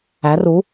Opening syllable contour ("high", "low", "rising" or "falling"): rising